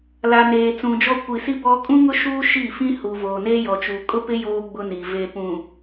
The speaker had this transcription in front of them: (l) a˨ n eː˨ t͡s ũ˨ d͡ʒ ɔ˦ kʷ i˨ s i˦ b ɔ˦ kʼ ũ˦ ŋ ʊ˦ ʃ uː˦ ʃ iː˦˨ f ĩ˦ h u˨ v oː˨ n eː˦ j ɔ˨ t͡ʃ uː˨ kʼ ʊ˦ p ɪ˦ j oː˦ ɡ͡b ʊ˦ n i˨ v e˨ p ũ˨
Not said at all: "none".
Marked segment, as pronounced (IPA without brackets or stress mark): l